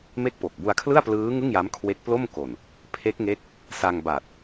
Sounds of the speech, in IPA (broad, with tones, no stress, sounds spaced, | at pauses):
m e˥˩ k̚ p o˨˩ k̚ b u˧ a̯ kʰ l ɯ˥˩ a̯ p l ɯː˦˥ ŋ ɯ˥˩ ŋ j a˦˥ m kʰ w e˦˥ k̚ p l o˥˩ m k o˨˩ n | pʰ e˦˥ k̚ ŋ e˦˥ k̚ | s a˧ ŋ b a˨˩ t̚